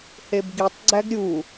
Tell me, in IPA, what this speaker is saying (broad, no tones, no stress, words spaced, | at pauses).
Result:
hebɡitˤɡ͡ǀæɡ ɾʲu